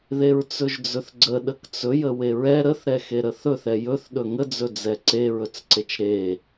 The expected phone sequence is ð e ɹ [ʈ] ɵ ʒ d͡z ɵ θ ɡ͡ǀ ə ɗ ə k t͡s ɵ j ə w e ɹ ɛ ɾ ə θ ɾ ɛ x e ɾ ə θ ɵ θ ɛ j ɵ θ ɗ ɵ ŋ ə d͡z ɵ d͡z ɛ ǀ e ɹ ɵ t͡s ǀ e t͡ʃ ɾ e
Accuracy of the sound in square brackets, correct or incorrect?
incorrect